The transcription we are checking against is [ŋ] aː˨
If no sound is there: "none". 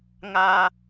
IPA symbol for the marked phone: ŋ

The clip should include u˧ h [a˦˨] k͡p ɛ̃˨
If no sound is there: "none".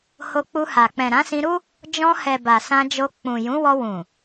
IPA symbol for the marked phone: a˨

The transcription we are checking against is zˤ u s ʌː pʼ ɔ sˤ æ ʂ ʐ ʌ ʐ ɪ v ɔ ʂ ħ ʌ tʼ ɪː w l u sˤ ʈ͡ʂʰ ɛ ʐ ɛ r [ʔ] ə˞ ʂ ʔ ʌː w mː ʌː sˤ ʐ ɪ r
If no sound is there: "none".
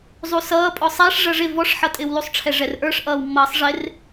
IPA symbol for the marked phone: ʔ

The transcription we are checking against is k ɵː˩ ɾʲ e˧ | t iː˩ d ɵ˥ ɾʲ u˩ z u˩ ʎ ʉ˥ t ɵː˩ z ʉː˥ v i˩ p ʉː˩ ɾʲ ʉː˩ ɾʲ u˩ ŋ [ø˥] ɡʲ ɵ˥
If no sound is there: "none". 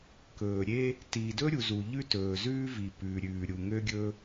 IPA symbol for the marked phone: ø˥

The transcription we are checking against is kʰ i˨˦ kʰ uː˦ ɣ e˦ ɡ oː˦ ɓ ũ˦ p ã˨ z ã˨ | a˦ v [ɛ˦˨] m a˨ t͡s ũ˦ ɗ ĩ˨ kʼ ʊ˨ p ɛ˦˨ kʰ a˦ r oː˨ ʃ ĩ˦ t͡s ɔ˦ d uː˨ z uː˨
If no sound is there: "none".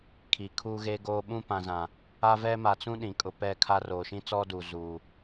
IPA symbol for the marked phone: ɛ˦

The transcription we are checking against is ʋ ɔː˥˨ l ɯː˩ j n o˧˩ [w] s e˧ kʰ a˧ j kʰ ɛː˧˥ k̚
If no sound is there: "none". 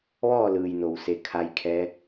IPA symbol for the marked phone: w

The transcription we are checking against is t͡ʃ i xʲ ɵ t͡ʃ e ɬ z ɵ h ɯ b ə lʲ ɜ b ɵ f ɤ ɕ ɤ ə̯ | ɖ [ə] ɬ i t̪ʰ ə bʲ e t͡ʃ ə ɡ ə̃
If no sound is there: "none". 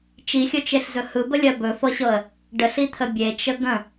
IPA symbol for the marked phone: ə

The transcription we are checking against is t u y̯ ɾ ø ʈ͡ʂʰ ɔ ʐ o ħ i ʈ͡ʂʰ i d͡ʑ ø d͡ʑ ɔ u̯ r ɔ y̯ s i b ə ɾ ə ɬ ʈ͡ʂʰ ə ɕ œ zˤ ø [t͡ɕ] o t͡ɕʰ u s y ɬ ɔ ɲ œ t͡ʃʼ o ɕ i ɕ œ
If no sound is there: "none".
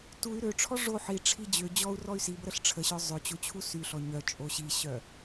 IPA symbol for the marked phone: t͡ɕ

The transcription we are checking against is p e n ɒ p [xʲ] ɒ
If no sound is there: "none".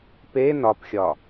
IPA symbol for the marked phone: xʲ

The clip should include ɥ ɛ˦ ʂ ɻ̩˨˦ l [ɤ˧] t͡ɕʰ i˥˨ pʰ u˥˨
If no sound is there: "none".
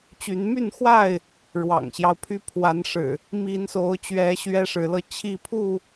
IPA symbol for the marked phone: ɤ˧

